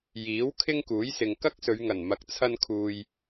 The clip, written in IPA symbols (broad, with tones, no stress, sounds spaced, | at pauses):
j iː˨˥ w kʰ ɪ˥ ŋ k uː˨˥ j s ɪ˨ ŋ k ɐ˥ k̚ s ɵ˨˧ ɥ ŋ ɐ˨˩ n m ɐ˨˥ k̚ t͡sʰ ɐ˧ n kʰ uː˨ j